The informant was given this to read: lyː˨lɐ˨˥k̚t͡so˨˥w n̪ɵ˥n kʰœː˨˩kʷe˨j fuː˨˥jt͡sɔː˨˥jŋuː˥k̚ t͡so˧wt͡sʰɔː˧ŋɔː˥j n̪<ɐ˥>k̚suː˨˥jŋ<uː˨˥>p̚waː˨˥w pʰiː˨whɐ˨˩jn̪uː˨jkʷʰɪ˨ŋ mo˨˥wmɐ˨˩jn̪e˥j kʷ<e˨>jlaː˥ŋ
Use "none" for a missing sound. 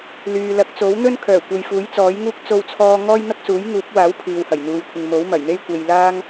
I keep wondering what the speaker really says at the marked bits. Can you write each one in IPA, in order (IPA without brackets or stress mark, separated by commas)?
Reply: ɐ˥, uː˨˥, e˨